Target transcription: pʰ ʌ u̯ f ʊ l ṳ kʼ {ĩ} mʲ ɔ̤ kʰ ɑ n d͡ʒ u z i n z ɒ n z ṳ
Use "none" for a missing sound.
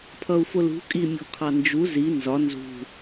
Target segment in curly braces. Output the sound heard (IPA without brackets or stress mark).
i